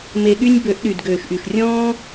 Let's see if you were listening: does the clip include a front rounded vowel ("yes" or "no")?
yes